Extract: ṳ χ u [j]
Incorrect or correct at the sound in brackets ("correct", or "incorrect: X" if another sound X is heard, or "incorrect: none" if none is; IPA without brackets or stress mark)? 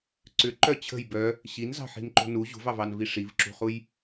correct